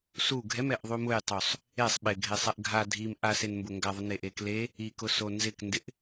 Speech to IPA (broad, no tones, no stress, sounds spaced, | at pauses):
s u ɡʱ ɛ m ɛ ʔ ðˤ u m ʊ j tˤ u sˤ | e sˤ ɓ ɪ ɡʱ e sˤ ɛ ʔ ɡʱ a dʱ i m ʔ a s e n m b ʊ ŋ ɡ a ðˤ ʊ n e ʔ e k l e | i k ʊ s o n z ɪ k n d ɪ ʔ